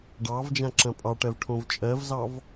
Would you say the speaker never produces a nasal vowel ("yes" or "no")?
no